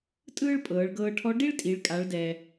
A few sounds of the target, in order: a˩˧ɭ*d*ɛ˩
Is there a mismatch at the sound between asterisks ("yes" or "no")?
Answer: no